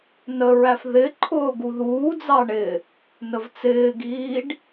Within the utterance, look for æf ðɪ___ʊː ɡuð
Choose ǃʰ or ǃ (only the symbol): ǃʰ